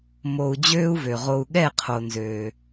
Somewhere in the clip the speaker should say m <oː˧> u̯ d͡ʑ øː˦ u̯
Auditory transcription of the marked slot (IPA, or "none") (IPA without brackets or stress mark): o˧